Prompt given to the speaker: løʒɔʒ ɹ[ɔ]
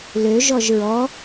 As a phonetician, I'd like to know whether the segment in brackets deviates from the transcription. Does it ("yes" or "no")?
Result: no